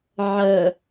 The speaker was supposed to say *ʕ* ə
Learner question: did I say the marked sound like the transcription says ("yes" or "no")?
yes